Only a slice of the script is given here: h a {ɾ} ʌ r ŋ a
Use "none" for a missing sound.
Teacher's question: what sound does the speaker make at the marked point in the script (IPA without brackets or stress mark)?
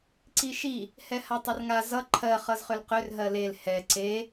tˤ